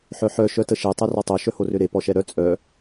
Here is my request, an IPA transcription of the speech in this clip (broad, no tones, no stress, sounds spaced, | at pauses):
ħ œ ħ œ ʃ œ t ə ʃ e tˤ ɛ r ɔ tˤ o ʃ œ h o r ø ɾ e p ɔ ʃ ɛ ɾ œ t͡sʼ œ